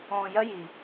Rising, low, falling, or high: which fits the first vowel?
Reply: low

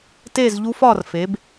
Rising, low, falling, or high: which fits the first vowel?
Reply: falling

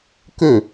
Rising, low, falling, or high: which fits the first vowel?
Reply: falling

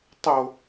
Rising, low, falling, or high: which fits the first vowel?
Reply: low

